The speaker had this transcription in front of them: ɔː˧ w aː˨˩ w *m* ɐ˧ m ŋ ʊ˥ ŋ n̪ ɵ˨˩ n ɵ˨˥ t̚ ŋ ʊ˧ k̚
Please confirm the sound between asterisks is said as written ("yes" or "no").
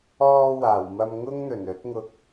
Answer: yes